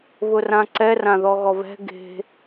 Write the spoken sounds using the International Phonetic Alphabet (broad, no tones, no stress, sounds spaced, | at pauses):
β ʊ r ã ǀ ɛ r ã ð ɔ ɣ ɔ β ɛ̤ ɡ e̤